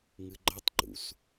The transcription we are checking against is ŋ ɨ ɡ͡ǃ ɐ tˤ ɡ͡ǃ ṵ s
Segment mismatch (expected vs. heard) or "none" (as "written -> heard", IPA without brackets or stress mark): none